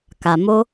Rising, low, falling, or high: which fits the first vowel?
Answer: low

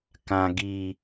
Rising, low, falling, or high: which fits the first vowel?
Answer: low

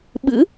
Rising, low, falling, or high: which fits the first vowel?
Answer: rising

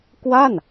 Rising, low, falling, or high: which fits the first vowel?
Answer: falling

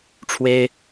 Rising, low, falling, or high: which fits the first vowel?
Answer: high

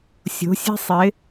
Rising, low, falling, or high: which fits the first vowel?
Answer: rising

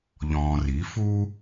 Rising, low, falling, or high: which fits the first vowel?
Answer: low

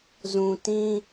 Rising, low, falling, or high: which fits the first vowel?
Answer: low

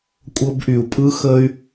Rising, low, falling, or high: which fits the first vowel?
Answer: high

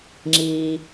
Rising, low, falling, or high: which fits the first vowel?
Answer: low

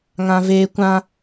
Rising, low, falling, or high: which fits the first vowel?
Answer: high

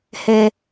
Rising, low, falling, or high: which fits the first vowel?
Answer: low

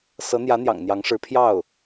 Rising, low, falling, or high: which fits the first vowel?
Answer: rising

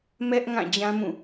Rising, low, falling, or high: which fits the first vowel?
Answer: high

